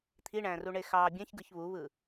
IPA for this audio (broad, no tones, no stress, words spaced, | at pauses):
t̪ʰiɳæ̃ ruɳexɑ bʲæ̃çɡɯç βuβɯ